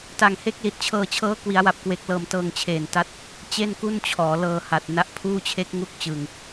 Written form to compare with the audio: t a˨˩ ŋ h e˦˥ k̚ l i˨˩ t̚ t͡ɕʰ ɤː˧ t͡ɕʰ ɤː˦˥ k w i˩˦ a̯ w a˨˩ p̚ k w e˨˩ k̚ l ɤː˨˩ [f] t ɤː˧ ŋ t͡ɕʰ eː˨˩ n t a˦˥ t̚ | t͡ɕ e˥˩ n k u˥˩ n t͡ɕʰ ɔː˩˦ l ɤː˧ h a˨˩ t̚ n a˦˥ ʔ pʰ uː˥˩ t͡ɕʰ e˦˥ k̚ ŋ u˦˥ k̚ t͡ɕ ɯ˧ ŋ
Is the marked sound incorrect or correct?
incorrect